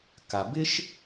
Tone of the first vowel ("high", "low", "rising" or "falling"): low